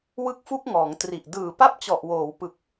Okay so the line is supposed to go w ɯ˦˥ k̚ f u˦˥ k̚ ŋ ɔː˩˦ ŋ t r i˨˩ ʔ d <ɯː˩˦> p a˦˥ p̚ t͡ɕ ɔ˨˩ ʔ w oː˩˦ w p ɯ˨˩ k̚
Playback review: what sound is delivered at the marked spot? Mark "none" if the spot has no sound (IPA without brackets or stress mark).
ɯː˨˩